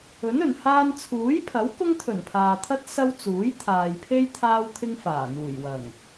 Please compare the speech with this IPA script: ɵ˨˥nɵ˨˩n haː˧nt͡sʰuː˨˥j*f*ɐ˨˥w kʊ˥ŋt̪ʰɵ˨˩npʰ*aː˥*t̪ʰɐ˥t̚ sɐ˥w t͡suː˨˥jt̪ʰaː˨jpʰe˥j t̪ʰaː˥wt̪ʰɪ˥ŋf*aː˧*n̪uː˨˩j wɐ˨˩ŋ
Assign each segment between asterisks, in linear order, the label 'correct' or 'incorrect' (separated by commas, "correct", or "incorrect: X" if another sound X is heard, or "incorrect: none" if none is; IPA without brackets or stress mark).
incorrect: pʰ, incorrect: aː˨, incorrect: aː˨˩